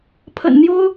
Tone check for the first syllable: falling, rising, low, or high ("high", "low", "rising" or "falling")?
low